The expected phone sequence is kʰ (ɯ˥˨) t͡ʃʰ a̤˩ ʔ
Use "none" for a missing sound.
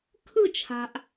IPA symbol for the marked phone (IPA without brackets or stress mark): ɯ˥˨